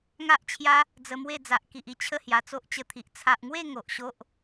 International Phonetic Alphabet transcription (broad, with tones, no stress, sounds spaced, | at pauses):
ŋ a˦ ʔ t͡ɕʰ j a˦ | d͡z ə˧ m w e˥˧ d͡z a˨ ʔ k i˨ ʔ i˧ t͡ɕʰ ə˥˧ h j a˨˩ t͡s o˦ ʔ t͡ɕ ə˧ t̪ʰ i˨ ʔ t͡sʰ a˨ ʔ ŋ w e˥˧ ŋ o˨ ʔ ɕ o˦ ʔ